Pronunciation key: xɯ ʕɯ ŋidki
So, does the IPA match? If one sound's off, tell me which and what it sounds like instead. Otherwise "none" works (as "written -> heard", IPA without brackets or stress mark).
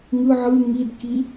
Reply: x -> ŋ